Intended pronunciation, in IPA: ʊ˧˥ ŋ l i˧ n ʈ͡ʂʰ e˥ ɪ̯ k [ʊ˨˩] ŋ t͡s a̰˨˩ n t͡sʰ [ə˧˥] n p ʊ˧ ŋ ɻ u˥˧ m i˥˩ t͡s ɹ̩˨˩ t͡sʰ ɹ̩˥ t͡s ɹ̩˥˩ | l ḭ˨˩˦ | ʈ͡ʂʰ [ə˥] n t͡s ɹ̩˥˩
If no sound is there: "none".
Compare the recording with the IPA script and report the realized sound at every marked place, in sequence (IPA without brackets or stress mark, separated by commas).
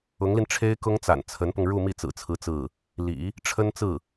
ʊ˥, ə˧˥, ə˥